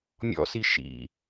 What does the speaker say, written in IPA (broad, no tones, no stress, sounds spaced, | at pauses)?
mʲ ɔ̰ s i ʃ ḭ